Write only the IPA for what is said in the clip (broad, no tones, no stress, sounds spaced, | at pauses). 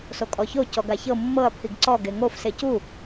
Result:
s o kʼ ɔ ç o c ɔ ɡ a ç ɤ mː ɤ ɐ̯ pʰ i ɡ ǀ ɔ ɡ e ŋ o f s e c u